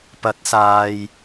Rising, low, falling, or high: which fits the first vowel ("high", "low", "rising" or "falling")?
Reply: rising